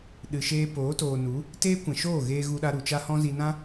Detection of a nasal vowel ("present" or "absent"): present